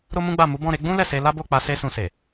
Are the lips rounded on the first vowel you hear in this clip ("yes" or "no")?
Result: yes